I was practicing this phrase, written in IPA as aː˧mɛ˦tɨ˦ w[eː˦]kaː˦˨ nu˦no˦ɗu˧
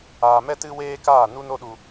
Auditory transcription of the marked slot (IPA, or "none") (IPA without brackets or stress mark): eː˦